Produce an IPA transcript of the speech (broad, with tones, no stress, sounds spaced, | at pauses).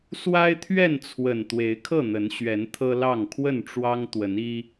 s w a˦ ɪ̯ t̪ʰ ɥ ɛ˥˨ n t͡sʰ w ə˨˩ n t̪ w e˨˦ ɪ̯ kʰ ɤ˥˨ n̪ ə˨˦ n ɕ ɥ ɛ˨˦ n t̪ʰ ɤ˦ l ɑ˥˨ ŋ kʰ w ə˥˨ n ʈ͡ʂ w ɑ˦ ŋ t̪ w ə˨˦ n i˦